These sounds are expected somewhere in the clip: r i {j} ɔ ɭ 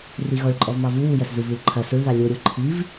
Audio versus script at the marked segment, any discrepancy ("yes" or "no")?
yes